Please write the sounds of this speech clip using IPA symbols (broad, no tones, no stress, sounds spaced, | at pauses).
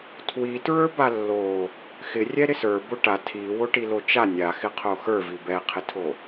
tʰ w i t ɹ ə˞ b a lː o | x ɪ rʲ ɛ ɾ ɪ s ə˞ b o ʈ a tʰ i w o ʈ i l o t͡ʃ a nʲ a x ɪ qʰ o x ə˞ v i b ɛ qʰ ɪ tʰ o